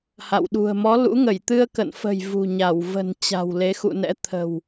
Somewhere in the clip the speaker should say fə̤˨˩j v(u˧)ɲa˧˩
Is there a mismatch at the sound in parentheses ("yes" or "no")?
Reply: yes